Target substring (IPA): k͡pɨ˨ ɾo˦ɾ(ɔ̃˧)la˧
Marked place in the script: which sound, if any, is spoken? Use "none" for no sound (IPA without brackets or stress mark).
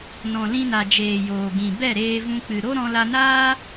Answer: ɔ̃˧